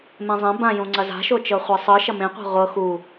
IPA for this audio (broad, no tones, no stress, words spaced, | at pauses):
mẽzˤẽ bãjũ ŋ͡ǀɐza̤ʃot͡ʃɤ χʷɛsˤɯ ʃɐmẽqʷa̤ ʁʷɤ xu